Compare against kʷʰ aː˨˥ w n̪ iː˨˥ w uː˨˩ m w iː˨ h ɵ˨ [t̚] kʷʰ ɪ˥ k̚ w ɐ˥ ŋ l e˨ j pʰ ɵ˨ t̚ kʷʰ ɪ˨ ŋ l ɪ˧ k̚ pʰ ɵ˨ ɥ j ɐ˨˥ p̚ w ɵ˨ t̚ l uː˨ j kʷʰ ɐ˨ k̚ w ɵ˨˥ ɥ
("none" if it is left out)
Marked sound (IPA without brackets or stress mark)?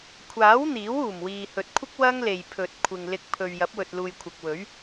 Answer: t̚